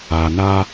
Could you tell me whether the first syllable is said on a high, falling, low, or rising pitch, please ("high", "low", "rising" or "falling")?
low